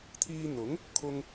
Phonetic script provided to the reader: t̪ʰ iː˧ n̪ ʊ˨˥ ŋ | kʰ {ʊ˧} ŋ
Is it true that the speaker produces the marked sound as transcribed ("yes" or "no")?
yes